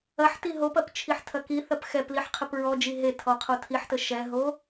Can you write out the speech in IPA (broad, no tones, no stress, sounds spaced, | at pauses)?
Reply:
ɐ ħ t i ɦ o p ɐ p t͡ʃʰ i ħ tʰ ɐ k i θ ɐ p x ɛ p l i ħ qʰ ə p ɹ ɔ d͡ʒ i ɦ e tʰ ɔ qʰ o tʰ i ħ t ə ʃ ɛ ɦ o